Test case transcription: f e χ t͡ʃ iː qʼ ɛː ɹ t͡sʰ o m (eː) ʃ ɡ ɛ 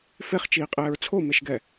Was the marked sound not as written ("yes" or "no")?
yes